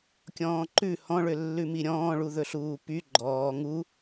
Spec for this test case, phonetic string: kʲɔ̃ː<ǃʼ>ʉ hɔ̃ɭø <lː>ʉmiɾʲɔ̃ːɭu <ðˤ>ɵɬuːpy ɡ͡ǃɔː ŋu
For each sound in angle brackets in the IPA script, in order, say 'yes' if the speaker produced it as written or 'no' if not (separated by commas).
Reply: no, yes, no